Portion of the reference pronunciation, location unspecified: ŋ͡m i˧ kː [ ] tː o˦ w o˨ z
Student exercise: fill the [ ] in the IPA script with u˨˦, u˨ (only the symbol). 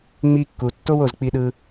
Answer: u˨